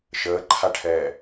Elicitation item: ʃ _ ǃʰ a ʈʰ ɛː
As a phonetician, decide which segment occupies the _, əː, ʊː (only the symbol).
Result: əː